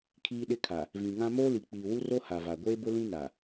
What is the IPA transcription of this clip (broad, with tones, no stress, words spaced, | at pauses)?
kʰiː˦ɗɪ˦kʰa˨ | vĩ˨ŋã˦ moː˦li˨k͡piː˨wu˦ ro˦ha˨va˨ ɡʷeː˦bʊ˦lĩ˦ na˨